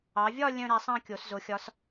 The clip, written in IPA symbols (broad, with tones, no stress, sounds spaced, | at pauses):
ɑ˩˧ vʲ ɒ˥˧ lʲ œ̃˥˧ ɾ æ˨˥ sˤ ɑ̃˥˧ kʲ o˩˧ s z o˩˧ xʲ ɒ˨˥ s